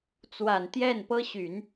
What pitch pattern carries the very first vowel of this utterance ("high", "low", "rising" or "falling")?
low